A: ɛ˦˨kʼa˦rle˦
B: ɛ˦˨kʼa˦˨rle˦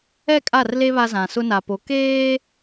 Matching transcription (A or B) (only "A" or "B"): B